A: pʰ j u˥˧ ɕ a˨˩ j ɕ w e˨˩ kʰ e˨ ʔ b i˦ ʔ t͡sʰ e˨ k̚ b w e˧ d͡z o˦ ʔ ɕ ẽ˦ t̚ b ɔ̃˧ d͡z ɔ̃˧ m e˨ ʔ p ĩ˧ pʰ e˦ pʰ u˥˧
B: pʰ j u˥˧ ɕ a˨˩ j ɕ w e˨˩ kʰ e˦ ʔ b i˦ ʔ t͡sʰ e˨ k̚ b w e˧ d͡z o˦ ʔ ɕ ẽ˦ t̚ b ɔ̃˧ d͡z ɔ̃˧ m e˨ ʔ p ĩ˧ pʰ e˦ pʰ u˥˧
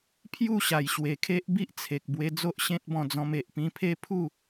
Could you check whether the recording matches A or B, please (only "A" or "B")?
B